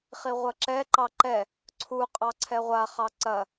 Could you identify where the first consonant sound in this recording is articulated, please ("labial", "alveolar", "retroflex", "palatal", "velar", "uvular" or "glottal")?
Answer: uvular